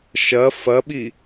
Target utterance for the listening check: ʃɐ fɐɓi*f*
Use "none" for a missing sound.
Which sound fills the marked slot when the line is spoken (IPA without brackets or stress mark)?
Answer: none